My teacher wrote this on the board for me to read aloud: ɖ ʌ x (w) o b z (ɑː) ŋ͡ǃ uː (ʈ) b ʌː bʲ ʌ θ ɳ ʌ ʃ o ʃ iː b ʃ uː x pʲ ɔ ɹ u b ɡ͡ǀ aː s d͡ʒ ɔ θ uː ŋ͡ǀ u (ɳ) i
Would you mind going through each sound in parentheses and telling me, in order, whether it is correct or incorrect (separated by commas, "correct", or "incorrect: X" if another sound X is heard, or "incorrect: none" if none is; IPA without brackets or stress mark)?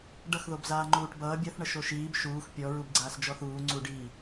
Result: incorrect: ð, incorrect: aː, correct, incorrect: ɖ